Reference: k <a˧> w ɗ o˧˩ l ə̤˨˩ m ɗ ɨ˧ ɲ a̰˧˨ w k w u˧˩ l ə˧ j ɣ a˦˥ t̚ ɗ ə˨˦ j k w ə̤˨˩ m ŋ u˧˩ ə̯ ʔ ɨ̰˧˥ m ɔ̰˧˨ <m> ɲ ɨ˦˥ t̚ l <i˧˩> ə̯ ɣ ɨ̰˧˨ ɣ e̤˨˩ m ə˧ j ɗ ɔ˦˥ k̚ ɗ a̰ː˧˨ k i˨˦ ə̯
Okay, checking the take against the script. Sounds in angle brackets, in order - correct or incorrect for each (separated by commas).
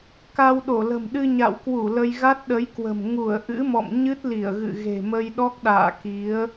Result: correct, correct, correct